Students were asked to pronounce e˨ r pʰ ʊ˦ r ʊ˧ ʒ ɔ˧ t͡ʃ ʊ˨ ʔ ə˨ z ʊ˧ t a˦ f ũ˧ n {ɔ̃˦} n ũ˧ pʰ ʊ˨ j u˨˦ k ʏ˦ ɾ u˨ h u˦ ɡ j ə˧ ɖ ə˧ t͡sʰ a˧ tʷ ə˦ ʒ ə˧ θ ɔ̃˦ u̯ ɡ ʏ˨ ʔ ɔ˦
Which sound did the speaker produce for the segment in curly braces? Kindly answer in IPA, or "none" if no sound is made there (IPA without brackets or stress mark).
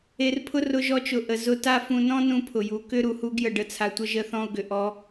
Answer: ɔ̃˦